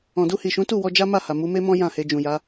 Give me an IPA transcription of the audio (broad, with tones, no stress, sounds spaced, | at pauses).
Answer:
ɔ̃˨ d u˧ h i˨ ʃ ũ˨˦ t u˦˨ w ɔ˧ d͡ʒ a˦ m a˦˨ h a˨ m u˨˦ m e˦ m ɔ̃˦ j ã˦˨ h e˧ d͡ʒ ũ˨ j a˨˦